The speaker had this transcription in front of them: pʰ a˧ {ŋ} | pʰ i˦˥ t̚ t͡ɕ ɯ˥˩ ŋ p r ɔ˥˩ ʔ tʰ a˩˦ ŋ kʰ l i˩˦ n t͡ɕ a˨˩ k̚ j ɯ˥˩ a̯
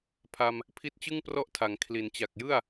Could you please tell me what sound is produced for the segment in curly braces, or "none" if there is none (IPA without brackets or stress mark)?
m